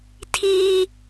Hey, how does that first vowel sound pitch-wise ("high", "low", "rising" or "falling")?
high